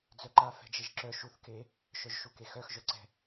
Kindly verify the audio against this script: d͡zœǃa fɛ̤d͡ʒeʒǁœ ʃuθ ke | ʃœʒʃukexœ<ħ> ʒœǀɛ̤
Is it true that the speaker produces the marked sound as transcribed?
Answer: no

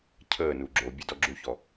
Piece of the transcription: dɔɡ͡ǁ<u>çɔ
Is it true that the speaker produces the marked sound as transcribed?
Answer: yes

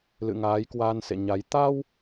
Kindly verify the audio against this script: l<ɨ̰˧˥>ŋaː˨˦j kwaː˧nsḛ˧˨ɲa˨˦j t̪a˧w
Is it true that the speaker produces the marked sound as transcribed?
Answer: no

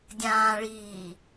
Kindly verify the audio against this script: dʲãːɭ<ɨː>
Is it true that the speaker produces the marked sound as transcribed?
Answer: no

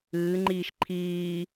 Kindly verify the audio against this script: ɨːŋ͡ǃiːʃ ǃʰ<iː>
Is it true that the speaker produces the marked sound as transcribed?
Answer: yes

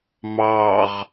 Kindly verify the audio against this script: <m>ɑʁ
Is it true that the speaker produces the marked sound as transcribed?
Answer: yes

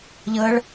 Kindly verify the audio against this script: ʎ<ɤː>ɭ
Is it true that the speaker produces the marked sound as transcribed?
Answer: yes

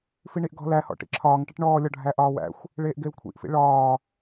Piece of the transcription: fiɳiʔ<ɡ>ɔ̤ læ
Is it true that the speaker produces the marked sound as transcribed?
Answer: yes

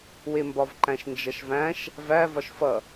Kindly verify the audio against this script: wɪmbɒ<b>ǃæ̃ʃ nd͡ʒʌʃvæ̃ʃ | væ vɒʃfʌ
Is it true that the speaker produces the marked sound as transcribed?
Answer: no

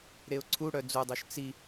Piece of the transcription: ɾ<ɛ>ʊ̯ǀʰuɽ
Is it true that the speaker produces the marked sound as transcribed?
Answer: no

